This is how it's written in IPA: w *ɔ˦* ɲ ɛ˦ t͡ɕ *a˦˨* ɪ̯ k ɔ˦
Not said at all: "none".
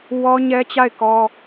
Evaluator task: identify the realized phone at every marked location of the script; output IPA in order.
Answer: ɔ˦, a˦˨

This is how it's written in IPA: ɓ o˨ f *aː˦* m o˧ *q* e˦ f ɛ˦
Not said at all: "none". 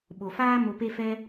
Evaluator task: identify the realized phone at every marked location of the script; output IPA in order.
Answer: aː˦, p

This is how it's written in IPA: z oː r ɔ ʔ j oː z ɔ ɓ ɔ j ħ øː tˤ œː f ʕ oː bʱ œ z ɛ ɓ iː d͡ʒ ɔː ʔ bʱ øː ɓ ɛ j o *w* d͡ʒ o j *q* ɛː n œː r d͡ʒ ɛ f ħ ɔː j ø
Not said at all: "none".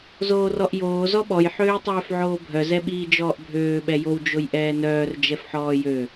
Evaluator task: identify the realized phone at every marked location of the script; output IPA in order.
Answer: w, ʔ

